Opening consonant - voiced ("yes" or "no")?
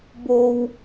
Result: yes